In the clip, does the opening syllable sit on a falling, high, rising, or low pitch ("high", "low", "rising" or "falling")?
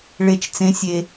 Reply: low